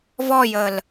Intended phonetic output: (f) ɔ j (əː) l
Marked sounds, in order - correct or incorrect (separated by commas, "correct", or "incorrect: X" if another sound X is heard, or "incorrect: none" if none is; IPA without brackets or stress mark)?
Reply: incorrect: v, correct